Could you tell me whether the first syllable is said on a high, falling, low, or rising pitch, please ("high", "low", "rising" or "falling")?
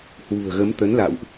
low